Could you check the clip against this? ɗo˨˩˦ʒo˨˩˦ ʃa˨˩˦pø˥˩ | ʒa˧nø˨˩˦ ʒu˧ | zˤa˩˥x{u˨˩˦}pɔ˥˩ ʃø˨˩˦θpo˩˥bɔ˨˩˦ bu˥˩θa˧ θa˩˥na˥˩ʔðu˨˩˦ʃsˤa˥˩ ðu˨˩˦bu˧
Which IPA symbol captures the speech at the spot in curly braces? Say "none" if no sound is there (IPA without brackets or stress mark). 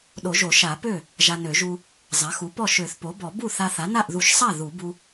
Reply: u˩˥